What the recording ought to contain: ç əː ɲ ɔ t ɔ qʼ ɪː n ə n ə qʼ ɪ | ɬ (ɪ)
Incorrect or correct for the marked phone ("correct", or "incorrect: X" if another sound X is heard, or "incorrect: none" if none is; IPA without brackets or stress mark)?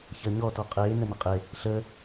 incorrect: ə